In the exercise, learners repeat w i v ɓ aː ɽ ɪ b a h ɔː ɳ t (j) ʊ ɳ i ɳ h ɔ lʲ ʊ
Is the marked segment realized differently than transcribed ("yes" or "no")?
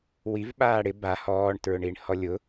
yes